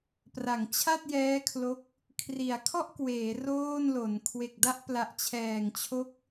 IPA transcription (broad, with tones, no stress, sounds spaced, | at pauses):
p r a˩˦ ŋ t͡ɕʰ a˥˩ t̚ j ɛː˦˥ kʰ l o˦˥ k̚ | kʰ r i˩˦ a̯ kʰ ɔ˥˩ ʔ k w eː˩˦ r oː˥˩ n l o˩˦ n kʰ w e˨˩ k̚ d a˥˩ ʔ p l a˨˩ ʔ t͡ɕʰ ɛː˨˩ ŋ t͡ɕʰ o˦˥ k̚